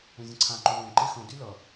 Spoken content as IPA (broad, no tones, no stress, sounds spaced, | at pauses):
ẽ zʲ ə̃ ǀʰ ã ǃ u ɭ õ ǃ e x õ d y l ʌ